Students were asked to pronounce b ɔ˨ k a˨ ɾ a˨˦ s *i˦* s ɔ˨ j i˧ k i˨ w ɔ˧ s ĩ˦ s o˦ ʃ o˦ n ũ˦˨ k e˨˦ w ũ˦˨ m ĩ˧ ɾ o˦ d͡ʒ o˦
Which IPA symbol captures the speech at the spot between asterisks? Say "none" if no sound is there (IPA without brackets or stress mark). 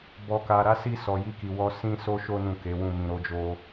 i˧